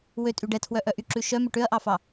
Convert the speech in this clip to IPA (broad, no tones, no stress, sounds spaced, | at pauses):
w ø tʼ y ɖ ɛ tʰ w œ ʔ œ ʔ y ǁ ʉ ʃ œ m ø ʈ ø ɐ̯ ʔ ɑ f ɑ